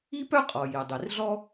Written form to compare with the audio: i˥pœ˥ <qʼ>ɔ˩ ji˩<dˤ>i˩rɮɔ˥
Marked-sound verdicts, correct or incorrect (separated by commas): correct, correct